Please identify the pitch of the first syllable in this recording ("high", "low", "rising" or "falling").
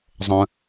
low